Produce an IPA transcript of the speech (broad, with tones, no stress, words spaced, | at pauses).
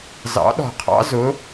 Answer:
zɑ̰˨˥ɗɔ̤˨˩qʰɑ̰˥ zʊ˨˥